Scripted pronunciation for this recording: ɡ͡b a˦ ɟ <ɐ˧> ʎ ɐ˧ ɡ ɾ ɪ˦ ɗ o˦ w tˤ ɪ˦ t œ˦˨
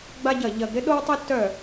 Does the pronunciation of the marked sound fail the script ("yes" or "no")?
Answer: yes